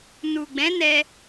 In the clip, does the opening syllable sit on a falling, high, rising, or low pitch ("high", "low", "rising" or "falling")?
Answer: low